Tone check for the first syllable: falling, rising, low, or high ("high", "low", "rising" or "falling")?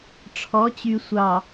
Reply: rising